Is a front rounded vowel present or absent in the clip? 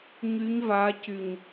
present